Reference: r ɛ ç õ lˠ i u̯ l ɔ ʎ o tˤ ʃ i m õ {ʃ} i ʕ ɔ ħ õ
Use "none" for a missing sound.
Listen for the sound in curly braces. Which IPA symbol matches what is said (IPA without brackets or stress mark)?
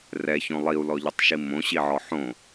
ɕ